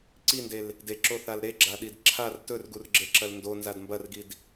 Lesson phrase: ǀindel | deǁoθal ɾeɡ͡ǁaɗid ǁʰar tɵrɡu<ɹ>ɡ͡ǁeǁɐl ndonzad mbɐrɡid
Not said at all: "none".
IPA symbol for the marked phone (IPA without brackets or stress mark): r